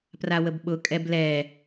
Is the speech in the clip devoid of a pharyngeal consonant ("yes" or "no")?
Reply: yes